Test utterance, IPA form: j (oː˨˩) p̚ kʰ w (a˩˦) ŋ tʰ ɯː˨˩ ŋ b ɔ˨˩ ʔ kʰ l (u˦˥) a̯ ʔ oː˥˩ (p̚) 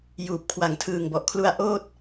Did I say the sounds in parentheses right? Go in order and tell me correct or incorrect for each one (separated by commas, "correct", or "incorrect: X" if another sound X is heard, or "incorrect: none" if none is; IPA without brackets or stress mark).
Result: incorrect: uː˨˩, incorrect: a˨˩, correct, incorrect: t̚